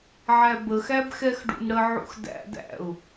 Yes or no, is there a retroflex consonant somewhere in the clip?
yes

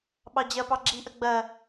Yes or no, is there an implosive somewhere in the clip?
yes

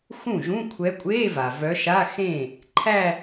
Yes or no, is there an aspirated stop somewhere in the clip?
yes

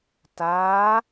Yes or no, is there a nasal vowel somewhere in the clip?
no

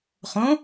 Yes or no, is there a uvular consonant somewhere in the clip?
yes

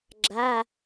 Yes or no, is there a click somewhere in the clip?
yes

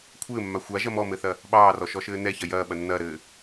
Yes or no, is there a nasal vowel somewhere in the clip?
no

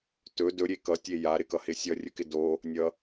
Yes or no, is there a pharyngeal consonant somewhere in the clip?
no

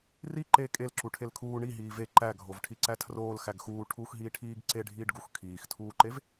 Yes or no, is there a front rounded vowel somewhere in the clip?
no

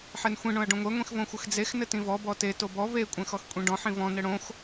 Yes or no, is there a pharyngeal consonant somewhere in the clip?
yes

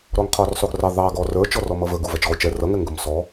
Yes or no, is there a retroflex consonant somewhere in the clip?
no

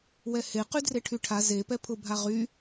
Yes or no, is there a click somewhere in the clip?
no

